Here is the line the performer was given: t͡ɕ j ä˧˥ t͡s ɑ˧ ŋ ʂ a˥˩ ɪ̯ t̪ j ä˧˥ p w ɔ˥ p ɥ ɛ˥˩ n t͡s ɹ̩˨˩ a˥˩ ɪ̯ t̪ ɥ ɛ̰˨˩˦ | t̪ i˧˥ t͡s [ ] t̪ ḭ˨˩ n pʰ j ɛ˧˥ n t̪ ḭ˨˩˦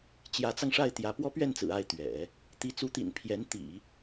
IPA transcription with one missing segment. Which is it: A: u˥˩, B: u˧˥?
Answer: B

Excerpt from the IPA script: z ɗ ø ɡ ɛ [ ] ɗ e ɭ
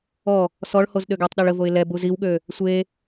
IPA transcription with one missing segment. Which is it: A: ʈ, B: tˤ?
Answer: B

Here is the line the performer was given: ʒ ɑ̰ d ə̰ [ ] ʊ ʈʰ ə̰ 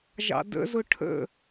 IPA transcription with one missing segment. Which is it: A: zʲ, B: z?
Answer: B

